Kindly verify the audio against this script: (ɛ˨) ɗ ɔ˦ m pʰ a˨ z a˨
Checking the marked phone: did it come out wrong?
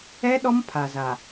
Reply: yes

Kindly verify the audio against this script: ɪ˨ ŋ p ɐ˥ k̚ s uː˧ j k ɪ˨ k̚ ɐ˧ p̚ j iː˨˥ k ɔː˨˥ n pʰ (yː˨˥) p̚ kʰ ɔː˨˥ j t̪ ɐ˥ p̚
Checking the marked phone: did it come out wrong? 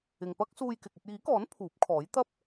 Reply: yes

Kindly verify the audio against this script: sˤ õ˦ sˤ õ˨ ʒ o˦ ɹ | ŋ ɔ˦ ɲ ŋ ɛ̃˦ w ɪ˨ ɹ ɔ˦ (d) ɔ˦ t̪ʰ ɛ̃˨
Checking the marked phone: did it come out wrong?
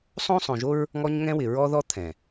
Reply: yes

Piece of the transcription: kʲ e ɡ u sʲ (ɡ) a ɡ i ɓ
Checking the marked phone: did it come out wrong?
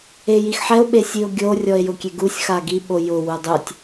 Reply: yes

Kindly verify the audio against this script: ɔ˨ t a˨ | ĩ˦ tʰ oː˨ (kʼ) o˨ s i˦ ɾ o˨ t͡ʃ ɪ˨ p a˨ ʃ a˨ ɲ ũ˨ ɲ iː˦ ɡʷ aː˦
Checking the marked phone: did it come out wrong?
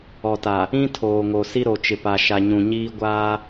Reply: yes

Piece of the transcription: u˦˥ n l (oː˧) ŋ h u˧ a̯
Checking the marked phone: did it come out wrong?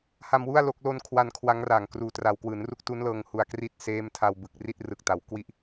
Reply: yes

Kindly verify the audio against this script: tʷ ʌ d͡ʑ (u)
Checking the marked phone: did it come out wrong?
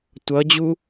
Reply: no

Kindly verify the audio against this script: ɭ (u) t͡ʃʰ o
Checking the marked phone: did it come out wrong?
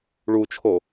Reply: no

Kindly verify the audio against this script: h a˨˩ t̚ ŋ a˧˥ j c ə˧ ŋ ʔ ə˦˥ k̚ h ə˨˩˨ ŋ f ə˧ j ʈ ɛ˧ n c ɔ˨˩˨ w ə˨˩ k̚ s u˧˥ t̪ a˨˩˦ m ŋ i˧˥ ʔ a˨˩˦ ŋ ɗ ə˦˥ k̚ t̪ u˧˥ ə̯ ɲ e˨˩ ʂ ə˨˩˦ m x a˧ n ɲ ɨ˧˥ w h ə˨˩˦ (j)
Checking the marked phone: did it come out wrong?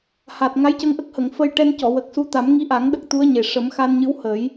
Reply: no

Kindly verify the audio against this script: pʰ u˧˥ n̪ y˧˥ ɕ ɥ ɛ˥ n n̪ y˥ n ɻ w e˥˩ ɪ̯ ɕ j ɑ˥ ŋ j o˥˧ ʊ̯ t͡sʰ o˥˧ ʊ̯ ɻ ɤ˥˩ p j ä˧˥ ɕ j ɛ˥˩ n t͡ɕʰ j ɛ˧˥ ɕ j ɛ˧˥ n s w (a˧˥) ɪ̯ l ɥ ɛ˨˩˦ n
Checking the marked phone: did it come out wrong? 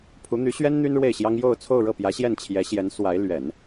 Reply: no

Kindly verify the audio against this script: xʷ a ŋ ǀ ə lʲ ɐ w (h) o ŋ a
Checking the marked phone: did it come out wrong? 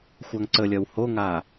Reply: no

